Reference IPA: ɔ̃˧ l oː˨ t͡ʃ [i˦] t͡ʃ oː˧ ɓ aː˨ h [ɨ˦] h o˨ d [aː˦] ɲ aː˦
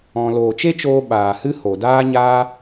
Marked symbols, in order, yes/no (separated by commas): no, yes, yes